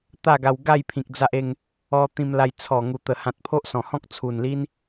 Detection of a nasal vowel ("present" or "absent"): present